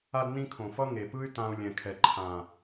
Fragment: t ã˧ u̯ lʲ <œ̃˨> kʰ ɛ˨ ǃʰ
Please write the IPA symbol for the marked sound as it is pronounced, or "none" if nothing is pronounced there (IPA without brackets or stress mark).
ɛ̃˨